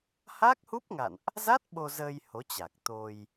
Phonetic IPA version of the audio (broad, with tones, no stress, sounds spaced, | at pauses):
h aː˦˥ k̚ h u˦˥ p̚ ŋ a̰˧˨ n ʔ | z a˦˥ t̚ ɓ o˧ z əː˧ j h o˨˦ t͡ɕ a˨˩ k̚ t̪ o˧ j